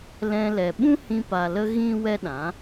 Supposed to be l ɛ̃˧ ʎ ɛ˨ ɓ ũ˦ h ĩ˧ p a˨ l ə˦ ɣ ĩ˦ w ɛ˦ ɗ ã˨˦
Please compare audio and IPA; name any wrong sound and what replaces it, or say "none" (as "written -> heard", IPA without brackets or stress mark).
ʎ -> l